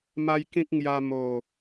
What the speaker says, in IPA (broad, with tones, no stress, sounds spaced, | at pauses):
m a˦ j k ĩ˦ k̚ ŋ j a˧ m o˨˩